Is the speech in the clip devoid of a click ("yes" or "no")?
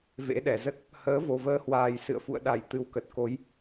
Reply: yes